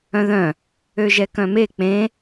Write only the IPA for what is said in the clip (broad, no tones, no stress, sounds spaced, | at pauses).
œ̃ ð œ̃ | ø ʒ ɛ k œ̃ m e k͡p ẽ